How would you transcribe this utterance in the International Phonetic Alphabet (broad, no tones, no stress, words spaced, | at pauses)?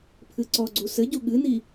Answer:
pʰɨǀɔɡ͡ǀu sɘɟu ɠɨni